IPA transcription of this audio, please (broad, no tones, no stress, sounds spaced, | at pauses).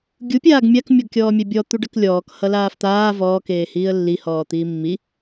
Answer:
ɡʲ u pʲ aː ɡ mʲ a k mʲ ɔ ɡ kʲ ɔː mʲ a bʲ ɔ t̪ u ɖ ʌ k lʲ ɔː k h ʌ l aː f t̪ aː v ɔː k eː h iː ə̯ lː i h ɔː t̪ iː mː i